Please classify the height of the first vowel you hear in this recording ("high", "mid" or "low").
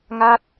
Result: low